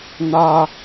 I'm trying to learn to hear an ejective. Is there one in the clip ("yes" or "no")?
no